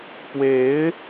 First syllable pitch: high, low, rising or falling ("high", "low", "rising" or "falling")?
rising